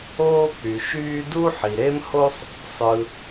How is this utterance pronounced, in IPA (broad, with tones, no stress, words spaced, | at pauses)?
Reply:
oː˥k͡py˩ ʃyː˥ du˥ħi˩ɾe˥mho˥sˤ | sˤɯ˩